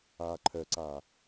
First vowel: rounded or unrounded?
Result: unrounded